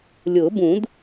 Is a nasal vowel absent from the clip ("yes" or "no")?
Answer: no